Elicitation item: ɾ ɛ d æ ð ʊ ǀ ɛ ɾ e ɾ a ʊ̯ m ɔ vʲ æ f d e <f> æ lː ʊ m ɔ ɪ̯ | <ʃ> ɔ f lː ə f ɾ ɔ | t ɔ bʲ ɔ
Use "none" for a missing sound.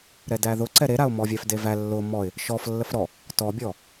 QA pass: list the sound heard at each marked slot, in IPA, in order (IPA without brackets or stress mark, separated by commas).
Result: v, ʃ